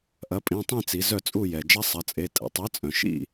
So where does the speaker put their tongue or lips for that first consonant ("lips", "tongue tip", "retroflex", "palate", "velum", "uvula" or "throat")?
throat